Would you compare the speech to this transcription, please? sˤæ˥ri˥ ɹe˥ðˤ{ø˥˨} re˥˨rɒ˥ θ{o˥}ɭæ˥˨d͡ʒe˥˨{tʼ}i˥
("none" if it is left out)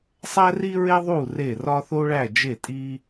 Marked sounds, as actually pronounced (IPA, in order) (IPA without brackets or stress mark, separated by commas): u˥˨, o˥, tʼ